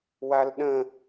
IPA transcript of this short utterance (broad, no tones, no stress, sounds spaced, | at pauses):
w a l ɗ ə̃